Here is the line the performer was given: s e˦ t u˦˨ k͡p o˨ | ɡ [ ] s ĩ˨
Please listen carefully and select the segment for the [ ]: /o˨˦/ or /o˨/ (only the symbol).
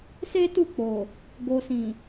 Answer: o˨